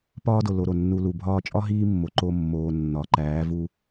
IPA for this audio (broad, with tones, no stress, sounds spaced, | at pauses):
p ɒː˦ d o˨ l o˧ ɾ o˨ nː u˧ l u˨ bʱ ɒː˧ t͡ʃʼ ɒ˦ ɦ iː˦ mː o˨ ǃ o˧ mː oː˨ nː ɒ˨ ǃ æː˨˦ v u˧